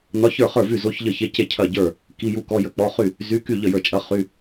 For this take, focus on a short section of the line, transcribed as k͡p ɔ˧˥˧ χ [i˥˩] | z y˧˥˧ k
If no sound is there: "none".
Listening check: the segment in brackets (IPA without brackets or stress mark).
y˥˩